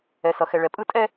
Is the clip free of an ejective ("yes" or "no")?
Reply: no